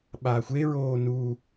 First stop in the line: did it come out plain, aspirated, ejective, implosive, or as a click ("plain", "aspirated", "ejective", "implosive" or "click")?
implosive